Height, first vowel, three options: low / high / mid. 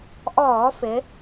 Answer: mid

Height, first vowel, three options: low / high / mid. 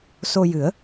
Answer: mid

